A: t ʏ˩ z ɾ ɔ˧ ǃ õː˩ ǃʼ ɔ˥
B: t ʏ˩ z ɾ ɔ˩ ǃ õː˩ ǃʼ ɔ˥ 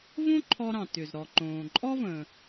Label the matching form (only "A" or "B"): B